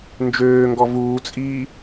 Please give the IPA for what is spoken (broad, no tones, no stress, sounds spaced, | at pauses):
n d͡ʒ øː ŋ ɡ ɔ v uː t͡sʼ iː